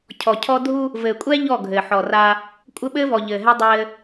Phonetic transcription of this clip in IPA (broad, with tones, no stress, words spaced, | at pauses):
cʰɔ˨cʰɔ˦ dʱu˦ | vɘː˨kʷʼɛ˦ ʎɔ˦˨ɡʱɘː˨ ħɔ˨ ra˦ | kʷʼɘ˦ ɓɘː˦vɔ˨ʎɘː˨ɦɛ˦ dˤɘː˦